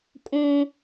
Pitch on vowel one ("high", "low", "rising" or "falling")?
high